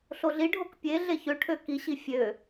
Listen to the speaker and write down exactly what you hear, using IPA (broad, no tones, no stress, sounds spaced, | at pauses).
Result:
ɬ o ɮ i ɖʱ o k pʲ e ɮ e ç ø ʈʰ ø k i ɕ i fʲ ø